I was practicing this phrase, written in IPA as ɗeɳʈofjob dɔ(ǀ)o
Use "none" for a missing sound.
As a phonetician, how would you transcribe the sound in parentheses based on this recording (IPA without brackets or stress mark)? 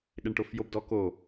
k